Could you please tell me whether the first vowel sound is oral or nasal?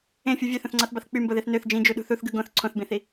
nasal